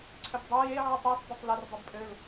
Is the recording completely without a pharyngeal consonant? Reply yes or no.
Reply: no